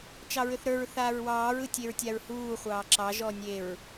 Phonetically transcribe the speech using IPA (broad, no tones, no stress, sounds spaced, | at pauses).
t͡ʃ ɑ ɹ ʏ θ ɾ ə˞ ɹ θ aː ɹ w ɑː ɹ ɯ tʲ e ɹ tʲ a ɹ h uː χʷ ɑː ǁ ɑ ʒ ɔː nʲ e ɹ